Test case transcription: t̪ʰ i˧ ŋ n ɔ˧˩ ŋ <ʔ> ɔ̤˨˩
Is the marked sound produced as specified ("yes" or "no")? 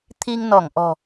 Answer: yes